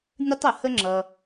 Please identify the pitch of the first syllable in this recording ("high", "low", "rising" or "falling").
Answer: high